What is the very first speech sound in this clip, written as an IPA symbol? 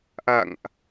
ʔ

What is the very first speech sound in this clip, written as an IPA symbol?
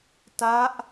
t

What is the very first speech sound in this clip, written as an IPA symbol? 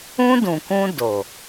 ũ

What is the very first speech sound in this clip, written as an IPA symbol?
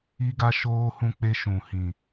i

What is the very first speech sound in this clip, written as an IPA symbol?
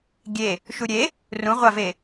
ɡʲ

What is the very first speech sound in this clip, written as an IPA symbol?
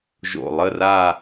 ʒ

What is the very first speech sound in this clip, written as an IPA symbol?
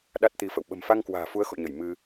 ɗ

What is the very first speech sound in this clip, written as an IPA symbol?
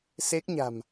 s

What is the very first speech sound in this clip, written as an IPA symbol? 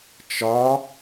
t͡ʃ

